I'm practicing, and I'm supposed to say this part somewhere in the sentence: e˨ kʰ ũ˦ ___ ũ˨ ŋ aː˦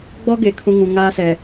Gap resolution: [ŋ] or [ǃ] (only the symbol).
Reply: ŋ